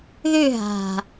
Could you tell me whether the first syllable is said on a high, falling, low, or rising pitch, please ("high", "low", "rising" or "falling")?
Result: falling